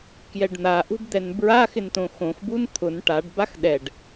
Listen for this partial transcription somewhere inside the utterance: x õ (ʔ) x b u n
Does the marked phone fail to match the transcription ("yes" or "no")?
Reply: yes